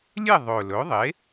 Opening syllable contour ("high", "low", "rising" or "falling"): falling